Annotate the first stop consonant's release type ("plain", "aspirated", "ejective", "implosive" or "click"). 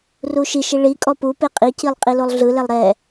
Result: ejective